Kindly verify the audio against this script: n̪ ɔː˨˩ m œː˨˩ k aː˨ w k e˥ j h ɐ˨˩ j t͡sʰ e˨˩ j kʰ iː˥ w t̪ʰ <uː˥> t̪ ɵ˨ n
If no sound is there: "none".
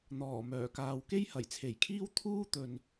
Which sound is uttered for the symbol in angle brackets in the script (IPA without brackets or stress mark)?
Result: uː˥